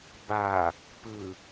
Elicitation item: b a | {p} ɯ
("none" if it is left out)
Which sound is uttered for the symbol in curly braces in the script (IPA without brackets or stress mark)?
p